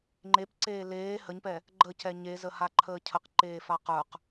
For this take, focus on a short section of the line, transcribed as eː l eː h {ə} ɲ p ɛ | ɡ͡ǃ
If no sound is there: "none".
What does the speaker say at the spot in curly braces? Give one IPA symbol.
ə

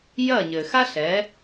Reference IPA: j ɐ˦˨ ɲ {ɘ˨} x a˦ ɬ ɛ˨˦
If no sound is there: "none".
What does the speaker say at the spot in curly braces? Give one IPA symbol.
ɘ˨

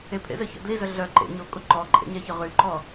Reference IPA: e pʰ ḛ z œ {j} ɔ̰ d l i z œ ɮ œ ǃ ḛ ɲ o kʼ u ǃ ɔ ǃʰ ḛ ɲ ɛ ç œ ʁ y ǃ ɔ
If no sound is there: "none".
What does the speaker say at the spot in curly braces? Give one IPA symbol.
ç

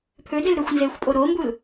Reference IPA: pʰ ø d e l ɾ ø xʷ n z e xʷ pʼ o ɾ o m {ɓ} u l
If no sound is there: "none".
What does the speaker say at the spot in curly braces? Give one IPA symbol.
b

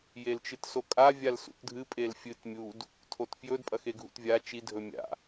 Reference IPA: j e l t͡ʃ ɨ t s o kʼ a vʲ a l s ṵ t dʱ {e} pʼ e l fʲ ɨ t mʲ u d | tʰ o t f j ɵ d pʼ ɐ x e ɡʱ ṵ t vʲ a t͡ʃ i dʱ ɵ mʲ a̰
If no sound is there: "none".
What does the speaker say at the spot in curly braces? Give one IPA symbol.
ɨ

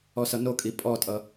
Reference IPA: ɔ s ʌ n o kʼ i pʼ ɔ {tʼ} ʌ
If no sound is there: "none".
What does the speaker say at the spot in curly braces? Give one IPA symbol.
tʼ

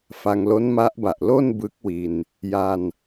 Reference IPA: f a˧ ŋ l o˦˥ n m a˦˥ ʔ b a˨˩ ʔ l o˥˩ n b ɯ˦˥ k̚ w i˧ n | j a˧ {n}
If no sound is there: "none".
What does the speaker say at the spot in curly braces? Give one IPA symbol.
n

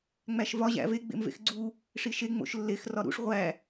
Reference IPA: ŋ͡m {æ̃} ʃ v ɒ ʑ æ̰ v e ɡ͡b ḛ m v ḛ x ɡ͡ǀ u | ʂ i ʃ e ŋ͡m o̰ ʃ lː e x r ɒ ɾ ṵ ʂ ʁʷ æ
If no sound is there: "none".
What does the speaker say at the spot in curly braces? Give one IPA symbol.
æ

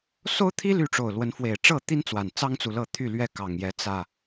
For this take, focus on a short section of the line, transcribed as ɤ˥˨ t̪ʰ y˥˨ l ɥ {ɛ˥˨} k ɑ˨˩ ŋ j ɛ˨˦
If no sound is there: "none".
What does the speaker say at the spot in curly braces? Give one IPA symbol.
ɛ˥˨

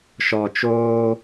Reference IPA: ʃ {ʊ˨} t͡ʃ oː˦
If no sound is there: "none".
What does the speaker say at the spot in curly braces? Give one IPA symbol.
ɔ˨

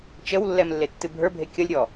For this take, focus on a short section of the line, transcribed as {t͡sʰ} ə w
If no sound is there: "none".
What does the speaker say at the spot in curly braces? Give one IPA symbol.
t͡ʃ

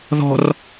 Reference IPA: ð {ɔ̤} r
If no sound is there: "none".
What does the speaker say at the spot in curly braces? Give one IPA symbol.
ɔ̤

